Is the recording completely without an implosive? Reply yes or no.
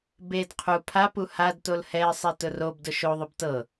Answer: yes